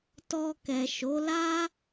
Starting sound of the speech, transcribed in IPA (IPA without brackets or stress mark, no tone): t